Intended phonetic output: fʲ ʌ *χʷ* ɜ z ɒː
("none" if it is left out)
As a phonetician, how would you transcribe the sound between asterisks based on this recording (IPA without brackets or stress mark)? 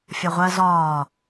ʁʷ